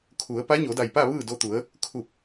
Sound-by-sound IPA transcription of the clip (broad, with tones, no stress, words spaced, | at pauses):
kʰu˩˧ə̯ pa˧˥ɲo˩˧da˧˩jpa˥˨ ʋɯː˥˨do˧t̪u˩˧ə̯ | kʰu˧˩p̚